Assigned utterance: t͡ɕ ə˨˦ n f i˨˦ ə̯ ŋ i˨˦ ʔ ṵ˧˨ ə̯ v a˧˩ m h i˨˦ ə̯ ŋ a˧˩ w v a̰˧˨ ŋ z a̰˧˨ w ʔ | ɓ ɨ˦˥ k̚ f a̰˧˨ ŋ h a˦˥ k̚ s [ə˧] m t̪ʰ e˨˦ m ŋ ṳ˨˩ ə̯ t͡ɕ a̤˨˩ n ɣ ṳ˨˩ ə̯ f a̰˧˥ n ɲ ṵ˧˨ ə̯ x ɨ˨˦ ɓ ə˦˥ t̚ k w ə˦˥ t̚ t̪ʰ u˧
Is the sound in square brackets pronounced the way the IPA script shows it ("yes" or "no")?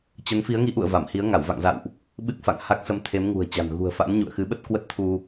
yes